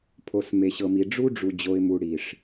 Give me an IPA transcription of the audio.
pʰo˨sme˨ɕɤ˨mi˨ ɖ͡ʐu˦ɖ͡ʐu˨ d͡ʑo˨ɪ̯mu˨ɽi˨ʂ

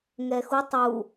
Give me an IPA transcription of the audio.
ŋɛxutˤ u

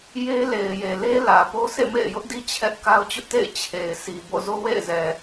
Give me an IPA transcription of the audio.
je˦ le˨ɪ̯je˨le˦ lä˨ po˦sʰḛ˦˨mḛ˦˨ɪ̯ jʊ˦ʔdi˦ t͡ɕʰɛ˦ʔ ka˦ʊ̯t͡ɕʊ˦ʔtḛ˦˨ɪ̯ t͡ɕʰe˨ɪ̯sʰi˨ bo̰˦˨ zo˦wḛ˦˨ɪ̯zɛ˨

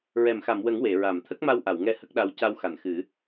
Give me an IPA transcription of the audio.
ɹɛ˨˩˨mxa˨˩˨mwə˨˩˦ŋ we˨˩˨ɹa˨˩˨m t̪ʰə˦˥k̚ma˧wʔa˨˩˨wŋɛ˧ hə˦˥k̚ɗa˧w ca˧wxa˨˩˨n xɨ˨˩˦

